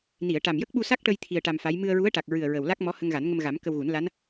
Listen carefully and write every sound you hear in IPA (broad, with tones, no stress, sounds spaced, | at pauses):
n i˨˩˨ ə̯ ʈ a˨˩ m j ə˦˥ k̚ ɓ u˧ s a˦˥ k̚ ʈ ə˧ j t̪ʰ i˧ ə̯ ʈ a˧ m f a˧˥ j m ɨ˧ ə̯ ɹ u˧˥ ə̯ ʈ a˨˩ k̚ ɹ ɨ˨˩ ə̯ ɹ ə˨˩ w l a˦˥ k̚ m ɔ˧˥ h ə˧ ŋ ɣ a˨˩˦ n ŋ ə˧ m ɣ a˨˩˦ m k ə˧ w ɣ u˨˩˦ n l a˧˥ n